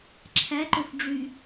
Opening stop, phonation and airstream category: click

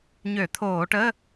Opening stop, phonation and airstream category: aspirated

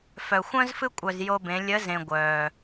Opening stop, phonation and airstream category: ejective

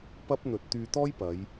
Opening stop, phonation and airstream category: plain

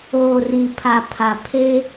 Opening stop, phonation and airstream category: aspirated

